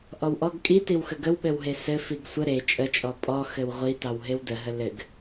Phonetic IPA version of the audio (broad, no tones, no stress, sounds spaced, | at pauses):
ʔ ɔ w ʔ ɔ ɡ kʼ i t i w x ə ɡ ə w ɓ ɘ w ɦ e s ɘ f i ɡ sʷ ə ɾ e t͡ʃʼ ə t͡ʃʼ ɔ pʼ ɔ x ɘ w ʁʷ i t ɑ w ɦ e w d ə ɦ ə l ɘ ɡ